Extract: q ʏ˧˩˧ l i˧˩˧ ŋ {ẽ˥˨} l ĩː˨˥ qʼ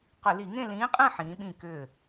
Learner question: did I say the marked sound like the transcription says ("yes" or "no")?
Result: yes